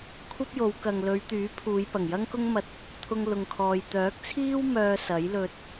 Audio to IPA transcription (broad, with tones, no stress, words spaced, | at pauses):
kʷʰɐ˥p̚jo˨˧w kɐ˨ŋlɵ˨˧ɥt̪yː˨˥pʰuː˨˧j pɐ˨˩ŋjɐ˥ŋkʊ˥ŋmɐ˧t̚ | t̪ʰʊ˧ŋ lʊ˨ŋkʰɔː˨j t̪œː˨˥k̚t͡sʰiː˥w mœː˥ sɐ˨˥jlɵ˧t̚